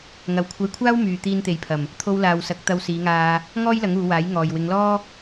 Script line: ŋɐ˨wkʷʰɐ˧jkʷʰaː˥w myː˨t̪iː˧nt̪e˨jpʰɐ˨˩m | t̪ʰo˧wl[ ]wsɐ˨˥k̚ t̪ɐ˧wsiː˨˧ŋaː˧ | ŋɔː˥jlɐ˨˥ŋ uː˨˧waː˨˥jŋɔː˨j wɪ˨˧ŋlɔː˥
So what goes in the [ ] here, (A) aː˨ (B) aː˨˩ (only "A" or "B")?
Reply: A